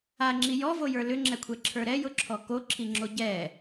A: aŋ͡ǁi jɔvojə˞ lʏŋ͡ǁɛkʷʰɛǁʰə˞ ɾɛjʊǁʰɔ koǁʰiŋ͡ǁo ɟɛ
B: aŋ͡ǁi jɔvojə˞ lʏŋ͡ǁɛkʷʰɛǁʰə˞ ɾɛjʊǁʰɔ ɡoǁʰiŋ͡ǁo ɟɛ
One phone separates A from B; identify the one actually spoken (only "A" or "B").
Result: A